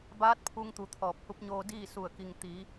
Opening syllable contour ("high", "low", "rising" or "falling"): rising